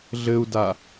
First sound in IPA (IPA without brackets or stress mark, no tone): ɮ